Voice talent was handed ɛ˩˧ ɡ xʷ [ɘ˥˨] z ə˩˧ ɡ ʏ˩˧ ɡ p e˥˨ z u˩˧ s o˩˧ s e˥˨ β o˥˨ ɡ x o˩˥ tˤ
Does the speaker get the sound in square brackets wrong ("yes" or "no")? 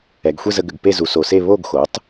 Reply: yes